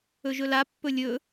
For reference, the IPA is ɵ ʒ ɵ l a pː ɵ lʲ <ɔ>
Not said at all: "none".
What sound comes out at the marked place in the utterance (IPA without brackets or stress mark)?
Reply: ɵ